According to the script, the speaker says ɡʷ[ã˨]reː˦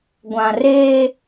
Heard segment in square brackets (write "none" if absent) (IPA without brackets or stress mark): ã˨